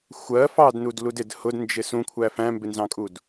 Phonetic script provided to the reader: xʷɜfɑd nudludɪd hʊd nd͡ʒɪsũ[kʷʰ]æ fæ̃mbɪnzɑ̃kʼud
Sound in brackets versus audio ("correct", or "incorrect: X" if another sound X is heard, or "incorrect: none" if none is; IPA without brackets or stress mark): correct